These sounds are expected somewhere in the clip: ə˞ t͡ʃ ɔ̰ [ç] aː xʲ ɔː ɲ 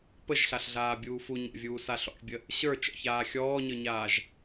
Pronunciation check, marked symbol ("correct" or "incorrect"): correct